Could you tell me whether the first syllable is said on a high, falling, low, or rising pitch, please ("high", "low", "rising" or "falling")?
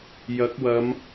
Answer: rising